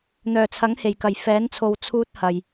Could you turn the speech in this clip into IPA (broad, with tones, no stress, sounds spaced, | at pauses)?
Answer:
n̪ œː˨˩ t͡sʰ ɐ˨˥ ŋ h e˨˩ j k ɐ˨˩ j f ɛː˨˥ n t͡sʰ o˨ w t͡sʰ uː˥ t̚ h ɐ˨ j